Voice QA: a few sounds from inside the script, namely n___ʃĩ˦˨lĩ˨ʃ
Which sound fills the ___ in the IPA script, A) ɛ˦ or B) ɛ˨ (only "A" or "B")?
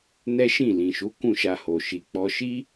A